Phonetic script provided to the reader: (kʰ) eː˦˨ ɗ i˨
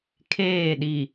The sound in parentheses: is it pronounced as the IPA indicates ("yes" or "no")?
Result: yes